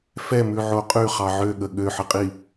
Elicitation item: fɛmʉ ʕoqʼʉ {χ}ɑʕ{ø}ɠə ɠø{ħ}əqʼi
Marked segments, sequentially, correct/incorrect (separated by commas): correct, correct, correct